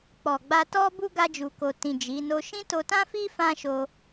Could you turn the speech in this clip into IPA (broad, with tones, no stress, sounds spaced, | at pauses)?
k͡p ɔ˨ ɡ͡b a˧ t ɔ˦ b u˦ ɡ a˧ d͡ʒ u˨ k o˨ t ĩ˨ d͡ʒ i˨˦ n o˦ ʃ ĩ˦ t o˧ t ã˦ f i˦ f ã˦ ʃ o˧